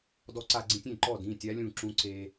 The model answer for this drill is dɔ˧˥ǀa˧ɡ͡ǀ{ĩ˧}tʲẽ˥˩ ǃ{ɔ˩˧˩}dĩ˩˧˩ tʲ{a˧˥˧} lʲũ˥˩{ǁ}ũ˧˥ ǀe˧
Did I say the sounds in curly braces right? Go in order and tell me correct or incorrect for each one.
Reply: correct, incorrect: ɔ˥˩, incorrect: a˧˥, correct

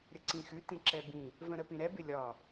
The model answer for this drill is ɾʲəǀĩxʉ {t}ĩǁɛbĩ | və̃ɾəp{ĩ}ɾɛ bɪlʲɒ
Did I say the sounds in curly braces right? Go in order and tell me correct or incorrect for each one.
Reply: correct, correct

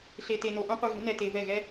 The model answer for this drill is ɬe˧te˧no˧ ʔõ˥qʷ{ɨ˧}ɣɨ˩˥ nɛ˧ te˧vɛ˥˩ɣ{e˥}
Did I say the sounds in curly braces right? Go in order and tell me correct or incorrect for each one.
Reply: correct, incorrect: ɛ˥

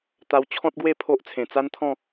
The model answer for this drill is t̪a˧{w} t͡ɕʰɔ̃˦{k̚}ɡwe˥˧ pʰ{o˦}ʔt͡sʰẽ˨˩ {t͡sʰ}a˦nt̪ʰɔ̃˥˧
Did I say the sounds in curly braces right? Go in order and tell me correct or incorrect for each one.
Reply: correct, incorrect: t̚, correct, incorrect: t͡s

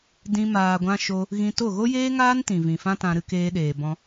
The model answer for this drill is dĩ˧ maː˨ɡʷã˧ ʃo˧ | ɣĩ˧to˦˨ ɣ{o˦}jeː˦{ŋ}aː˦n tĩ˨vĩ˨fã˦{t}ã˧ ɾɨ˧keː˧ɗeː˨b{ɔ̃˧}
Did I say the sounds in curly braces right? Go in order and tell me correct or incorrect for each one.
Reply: correct, correct, correct, correct

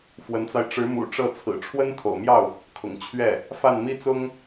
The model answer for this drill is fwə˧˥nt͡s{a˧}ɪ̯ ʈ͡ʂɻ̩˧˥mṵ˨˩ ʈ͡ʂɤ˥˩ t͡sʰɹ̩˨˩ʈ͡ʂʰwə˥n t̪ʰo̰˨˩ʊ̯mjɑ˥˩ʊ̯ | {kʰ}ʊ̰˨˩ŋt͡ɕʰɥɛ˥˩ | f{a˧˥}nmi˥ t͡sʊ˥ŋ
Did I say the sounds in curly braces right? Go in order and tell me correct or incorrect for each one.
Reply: correct, correct, incorrect: a˥˩

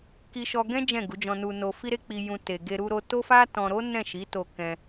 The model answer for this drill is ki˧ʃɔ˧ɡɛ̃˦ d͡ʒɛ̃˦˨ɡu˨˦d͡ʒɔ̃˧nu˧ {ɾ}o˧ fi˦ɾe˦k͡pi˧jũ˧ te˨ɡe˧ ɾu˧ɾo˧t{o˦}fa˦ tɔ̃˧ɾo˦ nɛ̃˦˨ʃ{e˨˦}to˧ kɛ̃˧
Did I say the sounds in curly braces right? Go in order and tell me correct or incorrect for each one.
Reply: incorrect: n, correct, incorrect: i˨˦

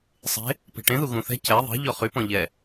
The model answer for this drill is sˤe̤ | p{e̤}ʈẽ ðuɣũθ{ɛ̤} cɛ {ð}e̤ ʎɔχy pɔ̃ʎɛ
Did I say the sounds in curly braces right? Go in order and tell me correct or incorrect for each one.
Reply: correct, correct, incorrect: ðˤ

